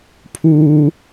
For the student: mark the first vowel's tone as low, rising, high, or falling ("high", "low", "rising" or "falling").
low